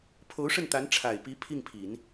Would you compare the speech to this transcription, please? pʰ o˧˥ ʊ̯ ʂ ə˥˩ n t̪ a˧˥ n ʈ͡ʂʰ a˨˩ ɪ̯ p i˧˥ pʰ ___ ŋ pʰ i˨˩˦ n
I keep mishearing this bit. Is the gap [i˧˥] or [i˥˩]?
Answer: i˥˩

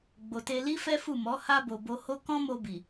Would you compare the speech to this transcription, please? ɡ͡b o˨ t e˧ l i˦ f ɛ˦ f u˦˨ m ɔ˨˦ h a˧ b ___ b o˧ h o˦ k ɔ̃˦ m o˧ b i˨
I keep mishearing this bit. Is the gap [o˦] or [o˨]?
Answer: o˨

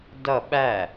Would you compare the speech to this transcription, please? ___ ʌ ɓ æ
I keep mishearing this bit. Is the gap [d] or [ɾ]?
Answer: d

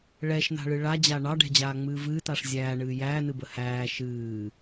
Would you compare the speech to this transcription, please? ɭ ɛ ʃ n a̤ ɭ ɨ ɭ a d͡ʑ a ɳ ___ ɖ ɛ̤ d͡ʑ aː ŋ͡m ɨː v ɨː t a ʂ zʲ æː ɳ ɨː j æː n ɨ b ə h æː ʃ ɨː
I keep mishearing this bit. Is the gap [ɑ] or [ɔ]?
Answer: ɑ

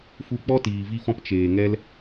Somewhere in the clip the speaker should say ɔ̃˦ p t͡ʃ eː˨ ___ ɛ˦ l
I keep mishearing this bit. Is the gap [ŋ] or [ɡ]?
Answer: ŋ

